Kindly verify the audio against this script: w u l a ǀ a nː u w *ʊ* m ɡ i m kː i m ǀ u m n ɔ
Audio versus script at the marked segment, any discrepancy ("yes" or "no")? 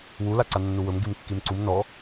yes